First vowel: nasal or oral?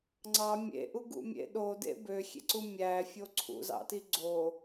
oral